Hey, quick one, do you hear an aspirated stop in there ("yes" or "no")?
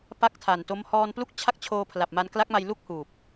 yes